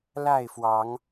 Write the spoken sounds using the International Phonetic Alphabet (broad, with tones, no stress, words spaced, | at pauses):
la˥˨ɪ̯fwɑ˨˦ŋ